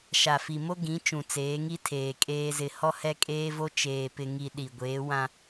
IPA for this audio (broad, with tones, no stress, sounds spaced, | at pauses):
ʃ a˨ f i˨ m o˦ ɡ ĩ˨˦ t͡ʃ ũ˨ t͡s eː˨˦ ŋ i˦ tʰ eː˨ kʼ eː˦ z ɪ˦˨ h ɔ˦ h ɛ˦ kʼ eː˦ v o˦ t͡ʃ eː˨ p ɪ˨ ŋ i˨ ɗ i˨ ɡʷ eː˨˦ w ã˦